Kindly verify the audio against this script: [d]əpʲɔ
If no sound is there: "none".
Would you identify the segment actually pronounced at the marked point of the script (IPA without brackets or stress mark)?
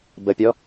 b